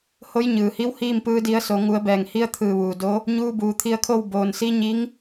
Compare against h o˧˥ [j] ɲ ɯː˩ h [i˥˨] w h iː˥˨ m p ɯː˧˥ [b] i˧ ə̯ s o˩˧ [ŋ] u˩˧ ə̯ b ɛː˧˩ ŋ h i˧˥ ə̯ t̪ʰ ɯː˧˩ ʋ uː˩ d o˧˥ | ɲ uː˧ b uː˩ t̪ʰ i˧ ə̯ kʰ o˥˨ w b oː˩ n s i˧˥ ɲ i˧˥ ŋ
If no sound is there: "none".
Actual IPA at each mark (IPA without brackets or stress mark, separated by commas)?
j, i˧˥, d, ŋ